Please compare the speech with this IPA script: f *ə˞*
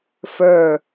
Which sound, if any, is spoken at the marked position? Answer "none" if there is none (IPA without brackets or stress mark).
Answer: ə˞